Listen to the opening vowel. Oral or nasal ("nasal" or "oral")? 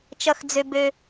oral